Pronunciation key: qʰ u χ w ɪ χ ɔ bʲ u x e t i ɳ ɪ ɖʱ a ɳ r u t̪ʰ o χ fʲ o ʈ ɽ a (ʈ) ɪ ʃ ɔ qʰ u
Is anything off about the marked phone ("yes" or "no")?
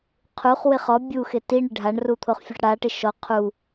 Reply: no